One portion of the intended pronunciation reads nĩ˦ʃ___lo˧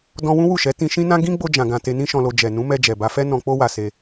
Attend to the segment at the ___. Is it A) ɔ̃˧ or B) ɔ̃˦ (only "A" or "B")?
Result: A